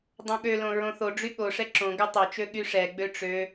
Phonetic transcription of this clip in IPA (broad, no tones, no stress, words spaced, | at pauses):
dˤõɠølõ ɹõθoɖ͡ʐy ɠoʂɛ ǁõɡɵ tˤɵt͡ʃø ɠyʂɛɡ͡bø ʈ͡ʂø